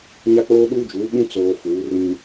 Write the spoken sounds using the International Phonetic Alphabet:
ɲ a˦ k͡p oː˦ ɗ uː˦ d͡ʒ uː˨˦ ɓ ũ˦ t͡s oː˨ f uː˨˦ r ĩ˦

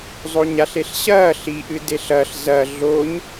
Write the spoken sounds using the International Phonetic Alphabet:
zˤ o ɲ a ɬ e ɬ ɕ ɐː ɬ i ʔ ɨ d e ɬ ɐ ɬ z ɐ ɮ o ɲ

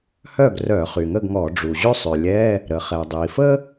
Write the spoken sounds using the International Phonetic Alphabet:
h œ˥˨ ɡ r œ˧˩˧ χ y˩ ŋ ə˥˨ ɡ ŋ ɔ˧˩˧ ɖ͡ʐ u˩ ʑ ø˥ sˤ ø˩ lʲ ɛ˧˥˧ | ɾ ə˩ χ ɛ˩ dˤ i˩ f ə˥

